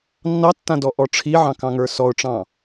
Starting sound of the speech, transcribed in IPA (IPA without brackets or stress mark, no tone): nː